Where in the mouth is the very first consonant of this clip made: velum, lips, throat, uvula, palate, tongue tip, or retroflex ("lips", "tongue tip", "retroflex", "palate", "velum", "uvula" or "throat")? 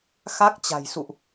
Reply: velum